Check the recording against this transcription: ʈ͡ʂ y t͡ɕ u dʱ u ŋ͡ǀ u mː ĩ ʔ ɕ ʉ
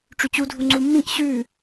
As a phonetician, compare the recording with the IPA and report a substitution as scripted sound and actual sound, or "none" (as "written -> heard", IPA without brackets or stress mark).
none